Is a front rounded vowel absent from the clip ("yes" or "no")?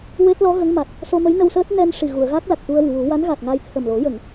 yes